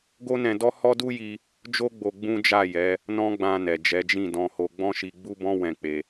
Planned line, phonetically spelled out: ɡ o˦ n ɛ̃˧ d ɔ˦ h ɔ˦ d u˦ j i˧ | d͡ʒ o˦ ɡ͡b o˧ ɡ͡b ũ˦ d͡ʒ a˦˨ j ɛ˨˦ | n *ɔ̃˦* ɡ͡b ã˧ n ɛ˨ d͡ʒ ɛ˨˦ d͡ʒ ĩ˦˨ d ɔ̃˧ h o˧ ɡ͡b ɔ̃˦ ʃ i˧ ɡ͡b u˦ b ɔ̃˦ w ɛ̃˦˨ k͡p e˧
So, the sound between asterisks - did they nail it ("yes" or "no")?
yes